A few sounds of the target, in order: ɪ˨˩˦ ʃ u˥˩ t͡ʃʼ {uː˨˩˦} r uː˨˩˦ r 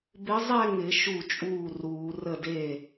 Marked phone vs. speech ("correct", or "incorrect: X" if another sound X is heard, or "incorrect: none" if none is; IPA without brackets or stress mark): incorrect: uː˥˩